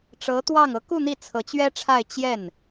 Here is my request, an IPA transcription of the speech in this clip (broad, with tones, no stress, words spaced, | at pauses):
ʈ͡ʂɤ˧˥t̪wɑ˥˩ŋ ɤ˧˥ku˥˧ n̪i˥˩ t͡sʰɤ˧˥t͡ɕɥɛ˥ʈ͡ʂʰa˥˧ɪ̯ t͡ɕjɛ˥˩n